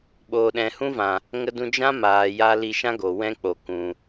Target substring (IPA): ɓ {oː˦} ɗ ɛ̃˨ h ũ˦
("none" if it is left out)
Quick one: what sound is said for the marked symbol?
oː˨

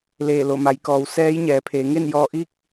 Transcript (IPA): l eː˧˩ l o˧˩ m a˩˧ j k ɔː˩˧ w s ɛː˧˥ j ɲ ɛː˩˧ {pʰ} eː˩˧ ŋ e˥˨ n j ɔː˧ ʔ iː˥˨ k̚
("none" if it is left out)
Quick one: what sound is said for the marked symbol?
pʰ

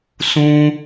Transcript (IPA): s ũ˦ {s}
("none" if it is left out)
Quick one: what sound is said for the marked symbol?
none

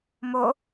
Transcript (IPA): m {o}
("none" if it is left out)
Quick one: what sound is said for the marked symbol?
o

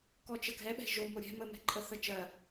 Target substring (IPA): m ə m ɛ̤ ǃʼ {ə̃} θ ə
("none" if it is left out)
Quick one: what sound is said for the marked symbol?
ə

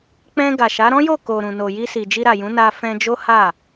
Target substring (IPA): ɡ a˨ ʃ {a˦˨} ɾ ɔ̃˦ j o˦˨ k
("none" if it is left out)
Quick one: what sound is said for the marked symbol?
a˨˦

